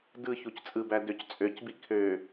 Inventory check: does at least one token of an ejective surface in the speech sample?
yes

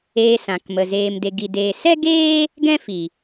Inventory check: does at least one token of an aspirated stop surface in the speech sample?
no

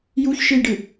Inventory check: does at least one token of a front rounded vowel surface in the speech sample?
no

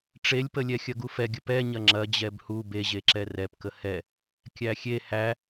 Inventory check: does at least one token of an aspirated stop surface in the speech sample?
no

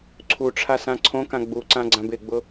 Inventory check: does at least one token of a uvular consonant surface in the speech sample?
no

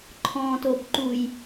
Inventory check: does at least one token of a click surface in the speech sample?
yes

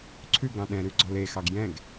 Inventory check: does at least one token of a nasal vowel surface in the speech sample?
yes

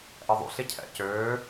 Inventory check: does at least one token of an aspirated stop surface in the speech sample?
yes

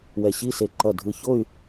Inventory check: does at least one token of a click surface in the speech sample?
yes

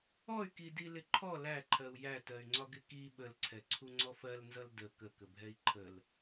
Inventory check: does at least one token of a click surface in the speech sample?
yes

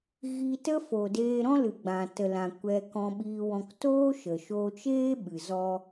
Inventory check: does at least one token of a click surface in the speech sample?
no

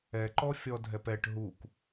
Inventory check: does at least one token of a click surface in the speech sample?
yes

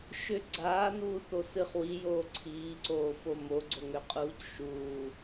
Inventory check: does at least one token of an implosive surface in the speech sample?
no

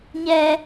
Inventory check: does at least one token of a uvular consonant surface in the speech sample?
no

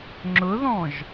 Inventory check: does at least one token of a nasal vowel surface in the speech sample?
yes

